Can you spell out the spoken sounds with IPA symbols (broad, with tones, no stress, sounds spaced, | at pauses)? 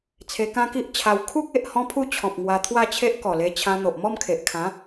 t͡sʰ e˧ k ã˦ k i˦ ʔ t͡ɕʰ a˧ w kʰ u˦ k̚ e˨ ʔ h ɔ̃˦ pʰ u˥˧ t͡ɕʰ ɔ̃˨ p̚ ŋ w a˧ t̪ʰ w a˥˧ t͡ɕʰ e˦ ʔ k ɔ˨˩ l e˧ t͡ɕʰ ã˧ n̪ o˨ ʔ m ɔ˥˧ m kʰ e˨ ʔ kʰ ã˨˦